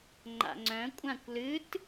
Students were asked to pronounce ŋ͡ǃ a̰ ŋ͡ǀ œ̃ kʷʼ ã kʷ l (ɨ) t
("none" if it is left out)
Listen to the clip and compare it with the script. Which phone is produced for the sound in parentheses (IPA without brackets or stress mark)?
ɨ